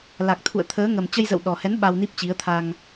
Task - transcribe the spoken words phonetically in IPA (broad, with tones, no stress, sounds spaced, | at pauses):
l a˨˩ k̚ t̪ʰ ṵ˧˨ ə̯ t̪ʰ əː˨˦ ŋ ə˨˩ m t͡ɕ ə˧ j z ə̰˧˨ w ɗ ɔ˨˩ h ɛ˨˦ n ɓ a˧ w n i˦˥ p̚ t͡ɕ i˨˦ ə̯ t̪ʰ a˧ ŋ